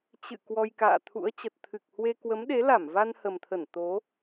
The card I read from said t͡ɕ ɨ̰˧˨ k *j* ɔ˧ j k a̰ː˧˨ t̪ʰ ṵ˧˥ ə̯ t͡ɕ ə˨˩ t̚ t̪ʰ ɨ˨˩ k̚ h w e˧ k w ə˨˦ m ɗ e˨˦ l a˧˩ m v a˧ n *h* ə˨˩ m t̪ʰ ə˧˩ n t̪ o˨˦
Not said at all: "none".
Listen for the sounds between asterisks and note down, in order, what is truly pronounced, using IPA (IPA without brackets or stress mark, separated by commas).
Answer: w, h